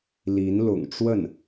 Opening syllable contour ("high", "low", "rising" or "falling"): rising